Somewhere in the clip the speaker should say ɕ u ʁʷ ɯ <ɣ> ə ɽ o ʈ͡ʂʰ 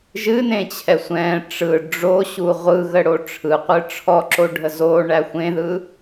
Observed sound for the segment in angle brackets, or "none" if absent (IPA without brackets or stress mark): ɣ